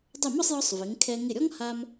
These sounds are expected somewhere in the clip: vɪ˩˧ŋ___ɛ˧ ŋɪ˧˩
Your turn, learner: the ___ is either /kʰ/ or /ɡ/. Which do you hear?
kʰ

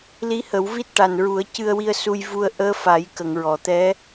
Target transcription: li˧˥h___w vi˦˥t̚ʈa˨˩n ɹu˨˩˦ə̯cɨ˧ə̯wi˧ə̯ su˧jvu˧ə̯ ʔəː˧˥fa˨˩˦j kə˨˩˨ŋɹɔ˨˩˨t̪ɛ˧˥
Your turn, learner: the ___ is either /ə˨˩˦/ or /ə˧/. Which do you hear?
ə˨˩˦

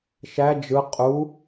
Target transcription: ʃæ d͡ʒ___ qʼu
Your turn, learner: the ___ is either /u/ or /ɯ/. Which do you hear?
ɯ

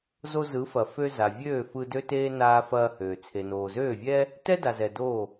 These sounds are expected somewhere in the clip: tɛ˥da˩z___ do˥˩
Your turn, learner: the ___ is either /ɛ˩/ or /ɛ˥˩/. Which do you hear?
ɛ˩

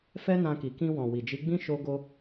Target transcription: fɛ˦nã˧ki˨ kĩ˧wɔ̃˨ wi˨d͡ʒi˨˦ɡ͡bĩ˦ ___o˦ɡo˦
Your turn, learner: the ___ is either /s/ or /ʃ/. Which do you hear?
ʃ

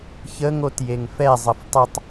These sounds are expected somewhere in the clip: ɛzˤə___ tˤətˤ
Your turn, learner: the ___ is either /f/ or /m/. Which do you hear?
f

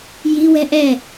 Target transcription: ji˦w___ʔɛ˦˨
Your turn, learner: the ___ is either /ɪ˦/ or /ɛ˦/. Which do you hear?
ɛ˦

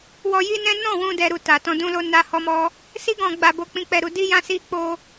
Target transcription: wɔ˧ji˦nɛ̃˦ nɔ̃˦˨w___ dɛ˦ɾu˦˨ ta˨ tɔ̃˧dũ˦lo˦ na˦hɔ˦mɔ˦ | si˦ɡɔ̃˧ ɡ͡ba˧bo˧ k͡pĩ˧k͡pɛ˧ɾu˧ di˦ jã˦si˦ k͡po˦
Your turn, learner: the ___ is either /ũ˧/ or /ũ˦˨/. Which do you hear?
ũ˧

